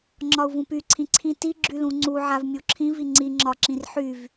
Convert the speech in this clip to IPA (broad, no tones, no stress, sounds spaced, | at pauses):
ŋ͡ǁ ɒ u̯ v ũ p y ǀʰ ĩ ǀʰ ĩ t i ɡ͡ǁ y l ũ ŋ͡ǀ u ʕ a v mʲ u ǁʰ ĩ v i ŋ͡ǀ i ŋ͡ǁ ɒ ǁ ĩ r ħ y v